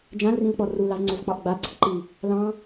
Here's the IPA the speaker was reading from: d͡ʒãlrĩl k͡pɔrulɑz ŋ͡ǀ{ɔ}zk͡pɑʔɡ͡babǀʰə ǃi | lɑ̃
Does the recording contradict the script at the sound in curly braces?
yes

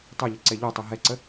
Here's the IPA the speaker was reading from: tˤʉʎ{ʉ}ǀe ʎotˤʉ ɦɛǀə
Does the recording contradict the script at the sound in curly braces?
yes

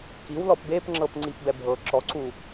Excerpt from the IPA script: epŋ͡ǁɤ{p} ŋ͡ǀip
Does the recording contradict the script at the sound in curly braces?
no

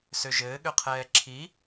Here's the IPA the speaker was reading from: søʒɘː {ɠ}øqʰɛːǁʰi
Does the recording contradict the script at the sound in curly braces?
no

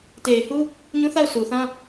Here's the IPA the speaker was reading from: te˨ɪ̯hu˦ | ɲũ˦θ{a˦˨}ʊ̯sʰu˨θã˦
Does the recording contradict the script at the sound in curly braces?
no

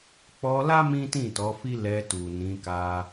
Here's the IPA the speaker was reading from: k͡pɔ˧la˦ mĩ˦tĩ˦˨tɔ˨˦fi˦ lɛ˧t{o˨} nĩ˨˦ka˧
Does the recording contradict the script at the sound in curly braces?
yes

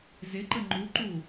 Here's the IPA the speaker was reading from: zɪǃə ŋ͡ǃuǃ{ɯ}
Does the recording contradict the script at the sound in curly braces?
yes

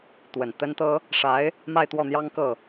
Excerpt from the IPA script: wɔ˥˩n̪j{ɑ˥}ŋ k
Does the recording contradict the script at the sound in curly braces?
no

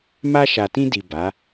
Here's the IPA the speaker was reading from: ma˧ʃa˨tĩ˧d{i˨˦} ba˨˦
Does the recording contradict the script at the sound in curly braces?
yes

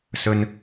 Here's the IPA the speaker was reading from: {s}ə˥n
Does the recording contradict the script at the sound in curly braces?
no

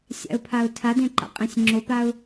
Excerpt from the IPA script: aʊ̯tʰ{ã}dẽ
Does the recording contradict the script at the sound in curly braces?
yes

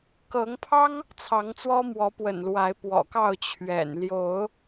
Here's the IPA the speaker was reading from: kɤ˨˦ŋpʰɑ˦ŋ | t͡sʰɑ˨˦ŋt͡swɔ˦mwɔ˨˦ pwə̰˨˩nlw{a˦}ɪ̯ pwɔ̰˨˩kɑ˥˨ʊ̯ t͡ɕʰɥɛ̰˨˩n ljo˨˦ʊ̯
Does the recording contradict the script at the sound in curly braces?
yes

